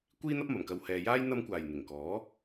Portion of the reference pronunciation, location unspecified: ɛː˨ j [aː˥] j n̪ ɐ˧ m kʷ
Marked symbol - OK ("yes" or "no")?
yes